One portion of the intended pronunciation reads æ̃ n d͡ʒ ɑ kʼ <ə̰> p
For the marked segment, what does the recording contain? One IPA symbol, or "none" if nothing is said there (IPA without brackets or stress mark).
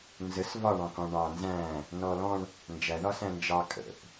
ə̰